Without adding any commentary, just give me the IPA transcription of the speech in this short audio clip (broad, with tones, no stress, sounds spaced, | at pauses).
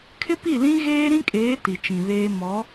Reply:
kʰ ɪ˦ p i˦˨ l ĩ˦ ɣ eː˦ ɾ ĩ˦ kʼ eː˨˦ t i˨ t͡ʃ ĩ˨ β eː˦ m ɔ˨˦